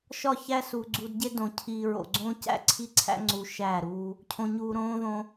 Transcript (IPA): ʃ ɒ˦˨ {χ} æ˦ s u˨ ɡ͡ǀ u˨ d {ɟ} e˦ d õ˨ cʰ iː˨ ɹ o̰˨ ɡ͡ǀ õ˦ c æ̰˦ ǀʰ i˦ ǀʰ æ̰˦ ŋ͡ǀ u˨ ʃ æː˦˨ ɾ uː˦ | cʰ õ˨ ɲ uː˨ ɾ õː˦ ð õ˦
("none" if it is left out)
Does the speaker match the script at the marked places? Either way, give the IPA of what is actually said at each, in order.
ç, ɟ

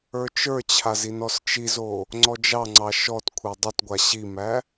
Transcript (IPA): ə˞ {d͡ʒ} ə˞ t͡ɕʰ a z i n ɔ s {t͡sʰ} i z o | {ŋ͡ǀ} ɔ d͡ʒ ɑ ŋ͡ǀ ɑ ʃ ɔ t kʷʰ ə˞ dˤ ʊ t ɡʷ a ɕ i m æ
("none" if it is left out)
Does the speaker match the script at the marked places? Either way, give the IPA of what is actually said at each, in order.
t͡ʃ, t͡ʃ, ŋ͡ǀ

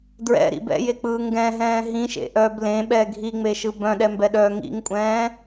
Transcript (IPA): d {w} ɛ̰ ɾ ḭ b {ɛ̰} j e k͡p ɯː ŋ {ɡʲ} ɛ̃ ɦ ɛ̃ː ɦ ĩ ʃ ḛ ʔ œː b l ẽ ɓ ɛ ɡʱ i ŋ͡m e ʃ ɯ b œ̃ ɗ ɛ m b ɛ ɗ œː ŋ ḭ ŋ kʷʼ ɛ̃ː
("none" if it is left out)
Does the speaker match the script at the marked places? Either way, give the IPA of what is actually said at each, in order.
ɹ, ɛ̰, ɡ

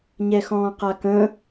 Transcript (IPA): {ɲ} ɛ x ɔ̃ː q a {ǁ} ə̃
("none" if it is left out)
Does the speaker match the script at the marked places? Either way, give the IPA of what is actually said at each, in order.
ɲ, k

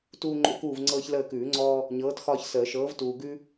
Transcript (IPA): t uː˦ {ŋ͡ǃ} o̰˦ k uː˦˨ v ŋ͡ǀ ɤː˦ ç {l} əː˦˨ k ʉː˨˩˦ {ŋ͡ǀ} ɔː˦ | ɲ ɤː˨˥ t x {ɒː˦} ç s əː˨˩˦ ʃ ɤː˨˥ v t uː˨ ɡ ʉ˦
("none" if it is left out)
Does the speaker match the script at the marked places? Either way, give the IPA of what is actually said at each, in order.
ŋ͡ǃ, l, ŋ͡ǀ, ɒː˦

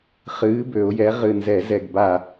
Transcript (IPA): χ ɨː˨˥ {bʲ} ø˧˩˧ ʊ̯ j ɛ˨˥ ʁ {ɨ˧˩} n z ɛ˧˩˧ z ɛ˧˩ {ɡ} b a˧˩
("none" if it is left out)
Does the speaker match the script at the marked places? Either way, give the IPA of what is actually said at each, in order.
b, ɨ˧˩, ɡ

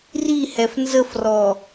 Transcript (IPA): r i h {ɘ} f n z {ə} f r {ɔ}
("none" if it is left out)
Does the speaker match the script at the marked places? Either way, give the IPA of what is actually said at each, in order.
ɛ, ə, ɔ

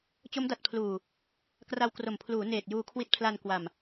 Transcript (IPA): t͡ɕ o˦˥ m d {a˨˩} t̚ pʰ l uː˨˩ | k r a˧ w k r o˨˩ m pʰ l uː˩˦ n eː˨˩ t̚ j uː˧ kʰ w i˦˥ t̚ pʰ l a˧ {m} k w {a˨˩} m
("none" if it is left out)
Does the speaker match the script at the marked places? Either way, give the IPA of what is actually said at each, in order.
a˨˩, n, a˨˩

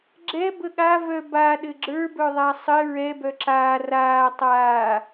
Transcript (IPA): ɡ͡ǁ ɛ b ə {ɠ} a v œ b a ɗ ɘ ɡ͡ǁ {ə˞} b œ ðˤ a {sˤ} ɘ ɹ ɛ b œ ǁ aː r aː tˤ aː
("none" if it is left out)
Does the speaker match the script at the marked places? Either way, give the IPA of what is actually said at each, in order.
ɠ, ə˞, sˤ

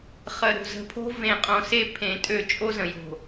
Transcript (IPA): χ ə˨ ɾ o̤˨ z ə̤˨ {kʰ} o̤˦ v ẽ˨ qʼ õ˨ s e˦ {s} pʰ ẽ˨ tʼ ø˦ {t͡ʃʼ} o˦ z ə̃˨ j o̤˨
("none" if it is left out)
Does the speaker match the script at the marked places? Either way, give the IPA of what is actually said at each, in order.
pʰ, none, t͡ʃʼ

